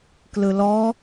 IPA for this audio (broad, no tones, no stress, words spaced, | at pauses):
klɯlɔ